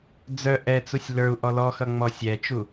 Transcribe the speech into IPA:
d͡z œ ʔ ɛ t͡s u sʲ l ə˞ u̯ ʔ ɔ l ɔ x ʌ ŋ͡m ɔ sʲ ɛ t͡ʃ u

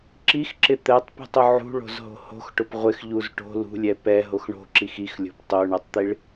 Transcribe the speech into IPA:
ǁ i x ǁ ɪ t̪ ɛ tˤ p ṳ tˤ ʊ ʕ ṳ ɭ o̤ z ɦ o̤ h o̤ x ʈ ʊ p ʁʷ ɪ x ʎ u z ʈ o̤ l ṳ lʲ ɛ p ɛ ɦ o x ɳ o̤ ǁ i x i x lʲ o̤ p tˤ o ɳ ɛ tˤ t̪ i ɭ

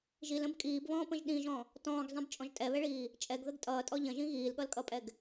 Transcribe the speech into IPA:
ʒ i l ə̃ b kʼ iː b β ɔ̃ː p ə̃ ʒ ɗ ĩ ʒ ɔ̃ | t ɔ̃ː ɡ zˤ ĩ b t͡ʃʼ ɔ̃ ʒ tʼ ɛ β ɛ ɭ iː | t͡ʃʼ ɛ ɡ ð ə ɡ tʼ ʌː tʼ ɔ ʎ ə̃ ʒ ĩ ɣ iː l ɠ ʌ l kʼ ʌ pʼ ɛ ɡ

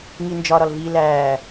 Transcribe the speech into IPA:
ŋ i n d͡ʒ ɒ ɾ ɒ l v i l æː

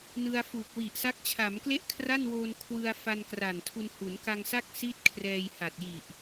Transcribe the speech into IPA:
n ɯ˧ a̯ f uː˨˩ k̚ w i˨˩ ʔ s a˦˥ k̚ t͡ɕʰ aː˩˦ m k l e˥˩ ʔ kʰ r a˥˩ n w oː˧ n kʰ w ɯ˧ a̯ f a˧ n k r a˨˩ n tʰ u˧ n h u˩˦ n k a˧ ŋ s a˥˩ k̚ s i˥˩ t̚ kʰ r ɛː˧ j h a˨˩ t̚ j i˨˩ ʔ

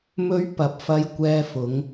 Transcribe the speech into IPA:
m ɵ˨˧ ɥ p ɐ˨ p̚ f ɐ˨˧ j kʷ ɛː˧ f ʊ˨˧ ŋ

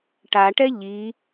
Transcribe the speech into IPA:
ʈ a ʈ ɛ ʎ i

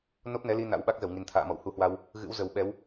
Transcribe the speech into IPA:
n o˦˥ p̚ n ɛ˨˦ l i˧ n a̰˧˥ w ɓ a˦˥ k̚ z ə˧˩ w ŋ i˨˩ n t̪ʰ a̰ː˧˨ m ɔ̰˧˨ w h u˨˦ h w a˧ w | ɣ ɨ̰˧˥ w z ə˨˩ w ɓ ɛ˨˦ w

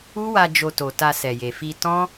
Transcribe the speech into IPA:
u˦ w a˧ d͡ʒ o˧ t o˨ t a˧ s ɛ˨ j e˨ f i˧ t ɔ̃˦

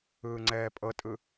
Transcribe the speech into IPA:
ɯː ŋ͡ǀ ɛː pʼ ɤ tʼ ɯ

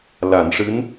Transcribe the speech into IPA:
l a˨˩˨ n ʂ ɨ˧˥ n

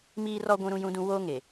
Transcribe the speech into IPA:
m iː˦ r ɔ˦ ɡʷ ũ˦ ɾ ũ˦ j ũ˦ d ũ˦ w oː˦ ŋ e˨

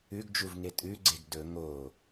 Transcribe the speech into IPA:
ʉ ɡ d͡ʒ u v ŋ e tʼ ʉ ɡ͡ǀ e ɡ d ɵ ŋ o

